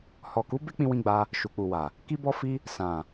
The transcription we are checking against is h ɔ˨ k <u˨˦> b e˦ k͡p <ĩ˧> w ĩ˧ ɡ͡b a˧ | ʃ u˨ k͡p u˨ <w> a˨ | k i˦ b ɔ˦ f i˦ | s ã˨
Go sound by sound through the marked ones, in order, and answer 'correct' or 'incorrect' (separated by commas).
correct, correct, correct